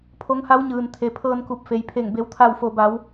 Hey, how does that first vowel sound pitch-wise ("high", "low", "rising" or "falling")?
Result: rising